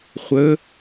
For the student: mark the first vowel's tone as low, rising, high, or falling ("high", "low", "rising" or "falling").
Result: rising